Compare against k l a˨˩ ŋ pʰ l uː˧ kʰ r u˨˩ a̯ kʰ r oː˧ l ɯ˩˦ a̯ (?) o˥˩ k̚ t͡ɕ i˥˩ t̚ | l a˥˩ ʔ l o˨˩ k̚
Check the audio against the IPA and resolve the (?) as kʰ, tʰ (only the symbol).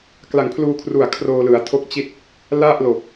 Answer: tʰ